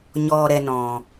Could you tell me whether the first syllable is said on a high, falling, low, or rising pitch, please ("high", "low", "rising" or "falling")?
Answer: low